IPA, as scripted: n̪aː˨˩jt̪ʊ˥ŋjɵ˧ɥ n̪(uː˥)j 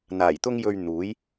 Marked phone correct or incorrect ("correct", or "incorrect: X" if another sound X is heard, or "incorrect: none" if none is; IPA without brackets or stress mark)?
incorrect: uː˨˥